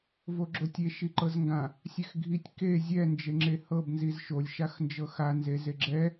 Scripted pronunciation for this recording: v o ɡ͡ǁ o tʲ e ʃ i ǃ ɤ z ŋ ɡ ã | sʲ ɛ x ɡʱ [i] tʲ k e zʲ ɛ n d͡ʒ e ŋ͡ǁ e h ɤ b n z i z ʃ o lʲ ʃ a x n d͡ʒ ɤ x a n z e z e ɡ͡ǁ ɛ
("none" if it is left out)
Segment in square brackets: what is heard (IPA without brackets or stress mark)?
i